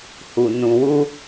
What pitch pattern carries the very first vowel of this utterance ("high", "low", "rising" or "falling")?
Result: low